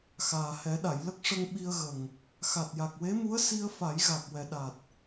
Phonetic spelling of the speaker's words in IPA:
xaː˨˩hɛ˨˩˦ɗa˨˩˨jlə˦˥k̚ ʂə˧ŋɓi˧ə̯ɣə˨˩ŋ | xa˨˩t̚ja˨˩k̚we˧˥mu˧˥ə̯ si˧ə̯fa˨˩˦j ɣa˨˩k̚wɛ˨˩ɗa˨˩t̚

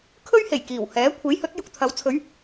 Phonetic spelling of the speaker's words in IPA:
kʰɵ˥ɥhe˨˩j kiː˨˩whɛː˨˥ kʷʰe˨˥jhɵ˨˥t̚ jʊ˧k̚t̪ʰɐ˨˧w t͡sʰɵ˨˥ɥ

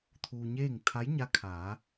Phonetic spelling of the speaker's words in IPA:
t̪ʰuː˧ɲeː˥˨ŋ t̪ʰa˧˥jɲa˧˥kʰaː˩˧

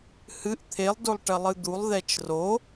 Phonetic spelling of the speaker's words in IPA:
hɨʔ t̪ʰelˠdolˠ ʈɐlˠɨd̪ulˠ ðɛt͡ʃro

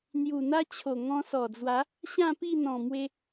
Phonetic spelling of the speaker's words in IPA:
n̪ju˨˩n̪a˦t͡ɕʰo˨˩ ŋɔ̃˧sɔ˨˩d͡zwa˨˦ | ɕã˥˧pi˥˧n̪ɔ̃˨˩mwe˧

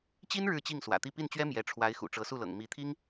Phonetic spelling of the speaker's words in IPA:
t͡ɕi˥n ɻɻ̩˥˧t͡ɕi˥˩ŋ swä̰˨˩t̪i˥˧ pi˥˩nt͡ɕɥɛ˥ mjɛ˧˥ ʈ͡ʂʰwa˧˥ɪ̯ xṵ˨˩ʈ͡ʂɤ˧˥su˥˩lɤ̰˨˩ŋ mi˧˥t̪ʰi˥ŋ

